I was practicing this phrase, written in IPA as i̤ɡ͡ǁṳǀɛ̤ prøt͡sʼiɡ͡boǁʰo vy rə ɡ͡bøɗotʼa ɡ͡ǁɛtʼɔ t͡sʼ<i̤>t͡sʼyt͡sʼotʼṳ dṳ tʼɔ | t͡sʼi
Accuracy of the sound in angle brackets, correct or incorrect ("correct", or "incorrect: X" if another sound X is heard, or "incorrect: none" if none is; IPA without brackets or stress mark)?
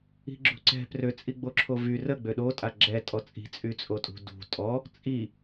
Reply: correct